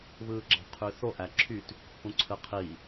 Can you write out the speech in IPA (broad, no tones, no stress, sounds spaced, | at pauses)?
β ɯː ɡ͡ǁ ɑ̤ qʰ y θ o ʔ æ ǁʰ y t | ʔ ũ ǀʰ ɯ qʰ i